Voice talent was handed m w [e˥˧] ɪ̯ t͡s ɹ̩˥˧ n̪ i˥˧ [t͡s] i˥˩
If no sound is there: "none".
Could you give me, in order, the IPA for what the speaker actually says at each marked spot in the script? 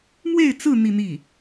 e˥˧, n̪

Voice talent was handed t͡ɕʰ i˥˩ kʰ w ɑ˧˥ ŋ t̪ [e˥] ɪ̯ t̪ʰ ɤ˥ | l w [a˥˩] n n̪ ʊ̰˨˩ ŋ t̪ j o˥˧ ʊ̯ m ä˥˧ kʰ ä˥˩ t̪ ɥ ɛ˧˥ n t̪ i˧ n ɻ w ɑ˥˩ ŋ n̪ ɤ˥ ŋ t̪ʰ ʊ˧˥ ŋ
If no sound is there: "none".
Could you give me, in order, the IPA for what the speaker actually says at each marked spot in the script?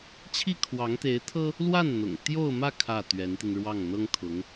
e˧˥, a˥˩

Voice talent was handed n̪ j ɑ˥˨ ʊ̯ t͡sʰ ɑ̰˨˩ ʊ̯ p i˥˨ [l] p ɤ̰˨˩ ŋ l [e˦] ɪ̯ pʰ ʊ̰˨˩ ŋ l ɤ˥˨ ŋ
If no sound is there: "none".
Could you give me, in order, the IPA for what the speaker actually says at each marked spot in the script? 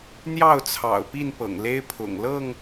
n, e˦

